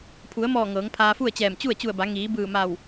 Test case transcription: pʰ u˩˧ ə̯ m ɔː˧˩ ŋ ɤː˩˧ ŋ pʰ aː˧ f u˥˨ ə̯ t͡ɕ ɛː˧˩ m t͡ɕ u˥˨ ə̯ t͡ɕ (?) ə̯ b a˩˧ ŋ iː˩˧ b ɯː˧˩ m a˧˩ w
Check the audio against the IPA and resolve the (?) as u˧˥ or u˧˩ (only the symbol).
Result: u˧˩